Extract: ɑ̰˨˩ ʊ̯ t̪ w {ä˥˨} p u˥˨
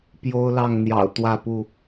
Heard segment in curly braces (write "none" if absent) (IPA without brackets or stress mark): ä˥˨